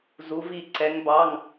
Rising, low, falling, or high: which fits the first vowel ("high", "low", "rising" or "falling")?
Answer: rising